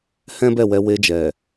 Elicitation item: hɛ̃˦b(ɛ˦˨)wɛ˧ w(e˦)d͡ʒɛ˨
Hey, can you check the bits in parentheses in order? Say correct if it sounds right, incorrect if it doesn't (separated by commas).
correct, incorrect